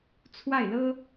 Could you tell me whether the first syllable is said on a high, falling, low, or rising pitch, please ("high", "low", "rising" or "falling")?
falling